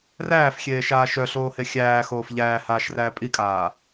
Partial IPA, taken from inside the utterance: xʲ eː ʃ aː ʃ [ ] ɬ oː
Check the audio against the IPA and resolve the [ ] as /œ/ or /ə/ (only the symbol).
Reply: œ